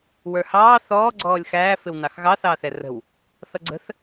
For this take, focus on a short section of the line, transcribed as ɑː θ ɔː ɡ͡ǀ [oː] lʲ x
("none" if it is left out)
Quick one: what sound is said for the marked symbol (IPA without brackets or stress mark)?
ɔː